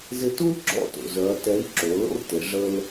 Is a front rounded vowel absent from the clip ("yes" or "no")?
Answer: no